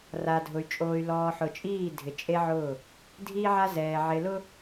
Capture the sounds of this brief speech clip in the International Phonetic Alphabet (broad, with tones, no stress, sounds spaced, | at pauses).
r a˨ dʱ ʊ˨ y̯ t͡ʃʼ oː˨ y̯ l ɔː˨ ħ ʊ˨ t͡ʃʼ iː˦˨ dʱ ɪ˨ t͡ʃʼ e˦ ʕ ʊː˦˨ | dʱ i˦ ʕ a˦ z ɛː˨ ʕ ɪ˨ l ʊ˦